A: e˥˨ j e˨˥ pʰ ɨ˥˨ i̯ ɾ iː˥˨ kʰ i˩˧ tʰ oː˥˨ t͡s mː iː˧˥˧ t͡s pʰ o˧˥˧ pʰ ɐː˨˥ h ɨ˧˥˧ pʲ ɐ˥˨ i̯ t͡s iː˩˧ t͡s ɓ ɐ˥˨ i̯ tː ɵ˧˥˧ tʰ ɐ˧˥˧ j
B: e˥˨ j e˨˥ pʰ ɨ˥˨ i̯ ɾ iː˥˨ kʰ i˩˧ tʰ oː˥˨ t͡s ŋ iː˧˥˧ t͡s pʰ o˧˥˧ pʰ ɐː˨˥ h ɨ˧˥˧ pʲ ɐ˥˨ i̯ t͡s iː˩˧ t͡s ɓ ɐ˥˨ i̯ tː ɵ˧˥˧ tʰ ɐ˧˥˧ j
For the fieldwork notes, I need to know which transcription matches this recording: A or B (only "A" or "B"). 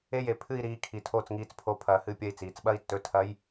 B